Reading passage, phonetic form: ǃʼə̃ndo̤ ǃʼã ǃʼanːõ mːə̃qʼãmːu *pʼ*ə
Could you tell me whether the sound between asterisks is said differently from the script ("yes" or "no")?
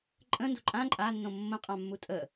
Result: yes